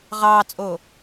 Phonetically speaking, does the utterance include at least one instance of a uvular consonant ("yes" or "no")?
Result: yes